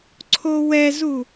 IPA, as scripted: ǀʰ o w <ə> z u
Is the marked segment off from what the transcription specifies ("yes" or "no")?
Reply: yes